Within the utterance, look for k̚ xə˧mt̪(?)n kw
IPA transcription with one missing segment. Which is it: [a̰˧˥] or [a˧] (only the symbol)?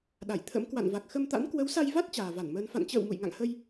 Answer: a̰˧˥